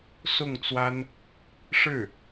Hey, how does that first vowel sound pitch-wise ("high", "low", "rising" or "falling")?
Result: falling